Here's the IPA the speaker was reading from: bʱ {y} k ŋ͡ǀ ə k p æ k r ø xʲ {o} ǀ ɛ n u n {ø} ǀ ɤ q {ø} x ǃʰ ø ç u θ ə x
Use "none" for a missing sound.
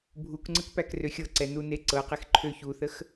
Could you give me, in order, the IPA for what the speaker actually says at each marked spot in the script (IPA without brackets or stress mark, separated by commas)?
u, ɤ, e, e